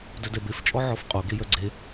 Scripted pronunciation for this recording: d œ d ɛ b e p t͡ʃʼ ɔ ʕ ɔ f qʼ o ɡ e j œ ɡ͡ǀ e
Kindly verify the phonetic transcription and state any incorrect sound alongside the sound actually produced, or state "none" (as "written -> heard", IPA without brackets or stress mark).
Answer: p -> f